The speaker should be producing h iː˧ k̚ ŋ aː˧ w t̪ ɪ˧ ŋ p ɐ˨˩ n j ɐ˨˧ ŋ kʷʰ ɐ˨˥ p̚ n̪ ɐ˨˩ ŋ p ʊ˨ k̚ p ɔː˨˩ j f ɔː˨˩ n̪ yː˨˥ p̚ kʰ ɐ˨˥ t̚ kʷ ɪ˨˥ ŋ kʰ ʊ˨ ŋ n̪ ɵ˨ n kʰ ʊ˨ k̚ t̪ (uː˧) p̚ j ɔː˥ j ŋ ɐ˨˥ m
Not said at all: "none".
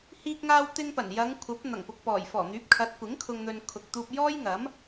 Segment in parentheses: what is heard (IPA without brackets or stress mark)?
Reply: uː˧